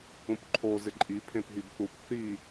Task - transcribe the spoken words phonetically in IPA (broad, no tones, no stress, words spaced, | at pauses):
ũpǃʰo zɪǃʼi pʰẽpɦibθup θi